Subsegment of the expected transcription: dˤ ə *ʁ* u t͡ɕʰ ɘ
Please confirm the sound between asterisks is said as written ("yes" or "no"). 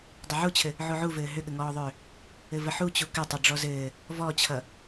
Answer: no